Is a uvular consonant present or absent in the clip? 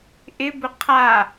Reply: present